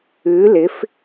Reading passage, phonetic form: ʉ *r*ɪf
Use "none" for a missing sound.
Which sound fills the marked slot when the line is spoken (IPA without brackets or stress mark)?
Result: l